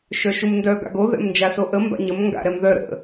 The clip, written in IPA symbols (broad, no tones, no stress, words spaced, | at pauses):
ʃœʃumndœ ɡa̰ɡo ðɛ̰mnd͡ʒasoʔə mba̰ɲəm ŋɡa̰ɾɛmðœ ɾə̰